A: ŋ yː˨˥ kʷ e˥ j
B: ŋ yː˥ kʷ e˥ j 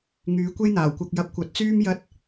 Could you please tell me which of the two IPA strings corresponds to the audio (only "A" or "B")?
A